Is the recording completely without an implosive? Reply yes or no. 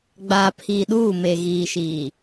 no